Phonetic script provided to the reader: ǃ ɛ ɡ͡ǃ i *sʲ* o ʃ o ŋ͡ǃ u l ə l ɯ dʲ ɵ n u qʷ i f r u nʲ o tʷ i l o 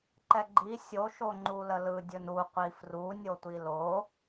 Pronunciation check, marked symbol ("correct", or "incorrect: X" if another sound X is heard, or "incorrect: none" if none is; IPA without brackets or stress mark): correct